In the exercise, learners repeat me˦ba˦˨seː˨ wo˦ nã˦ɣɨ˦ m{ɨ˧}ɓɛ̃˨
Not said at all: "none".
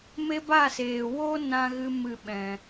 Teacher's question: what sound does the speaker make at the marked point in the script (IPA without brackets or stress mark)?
ɨ˦˨